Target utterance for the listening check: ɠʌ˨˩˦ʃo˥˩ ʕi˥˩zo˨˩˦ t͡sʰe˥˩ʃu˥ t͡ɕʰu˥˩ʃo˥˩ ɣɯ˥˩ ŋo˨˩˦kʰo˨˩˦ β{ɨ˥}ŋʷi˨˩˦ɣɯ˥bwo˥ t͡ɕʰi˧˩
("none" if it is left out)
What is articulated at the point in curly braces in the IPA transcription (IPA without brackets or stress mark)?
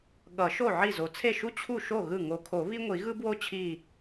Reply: i˥